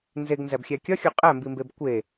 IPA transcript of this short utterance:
nzeɡnzæbxʲæ kʲɒxʲo qʼæmbimbeb kʷe

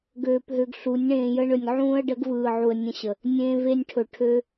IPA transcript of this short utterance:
ɡøː˧pɦø˧ɡɬu˨˦nʲ ɳẽː˧jə˦ɳɵ˧nʲ ʕũː˧ə̯ɖə˨˦ɡvɯː˨ʕu˨ə̯ nʲə̃˧ɕə˨ | nʲẽː˧ve˧nʲʈʰɵ˨ʈʰø˧

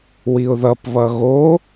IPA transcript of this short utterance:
wiʊ̯ðʌpβʌ ɣo

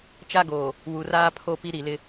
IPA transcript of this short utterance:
t͡ʃa˦ɡoː˨ | wu˨raː˦pʰo˦ pi˦ɾi˨lɪ˦

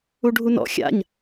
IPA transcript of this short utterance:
uɖʱunɔ̰ xʲa̰ɲ

